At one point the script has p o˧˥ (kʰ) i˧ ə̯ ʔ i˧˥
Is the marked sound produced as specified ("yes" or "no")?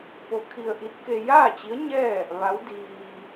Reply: yes